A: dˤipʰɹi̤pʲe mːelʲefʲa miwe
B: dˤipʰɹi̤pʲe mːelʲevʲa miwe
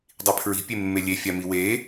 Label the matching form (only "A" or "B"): A